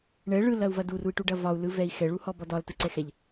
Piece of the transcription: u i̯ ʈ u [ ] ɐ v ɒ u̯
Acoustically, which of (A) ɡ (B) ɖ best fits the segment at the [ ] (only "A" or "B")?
B